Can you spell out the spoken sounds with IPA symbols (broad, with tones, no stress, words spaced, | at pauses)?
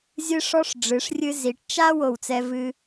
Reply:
zʲɨ˧ʂɔ˧ʂ ɖ͡ʐɨ˩˧ʂrʲɨ˧ zi˩˧ʈt͡ʃa˥ wo˧˩wt͡sɛ˧vɨ˧